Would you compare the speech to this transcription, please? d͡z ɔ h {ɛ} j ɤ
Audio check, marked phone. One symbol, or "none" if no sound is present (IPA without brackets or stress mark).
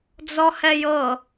ɛ